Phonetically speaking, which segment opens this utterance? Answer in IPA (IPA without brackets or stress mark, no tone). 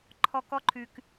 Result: ǃʰ